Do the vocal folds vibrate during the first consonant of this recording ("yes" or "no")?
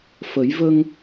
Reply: no